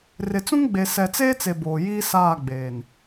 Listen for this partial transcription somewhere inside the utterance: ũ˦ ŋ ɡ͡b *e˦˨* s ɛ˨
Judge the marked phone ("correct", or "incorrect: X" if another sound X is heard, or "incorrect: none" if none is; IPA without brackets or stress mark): incorrect: e˨